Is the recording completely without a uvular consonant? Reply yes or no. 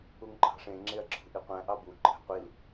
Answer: no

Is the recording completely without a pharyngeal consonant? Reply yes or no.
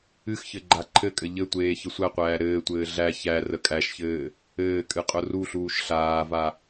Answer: yes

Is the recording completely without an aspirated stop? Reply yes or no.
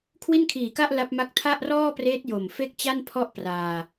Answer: no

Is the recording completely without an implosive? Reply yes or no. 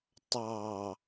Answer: yes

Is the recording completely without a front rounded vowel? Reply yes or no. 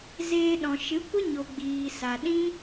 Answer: yes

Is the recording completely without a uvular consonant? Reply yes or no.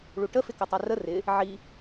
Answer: yes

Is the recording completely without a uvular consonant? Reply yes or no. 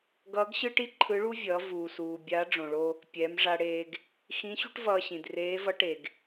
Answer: yes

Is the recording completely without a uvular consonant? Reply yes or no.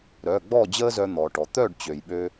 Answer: yes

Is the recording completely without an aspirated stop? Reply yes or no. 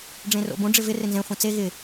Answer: yes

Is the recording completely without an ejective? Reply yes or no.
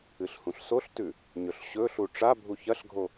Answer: yes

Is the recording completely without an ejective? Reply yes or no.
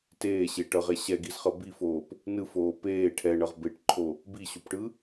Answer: yes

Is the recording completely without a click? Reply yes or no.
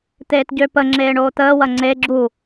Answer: no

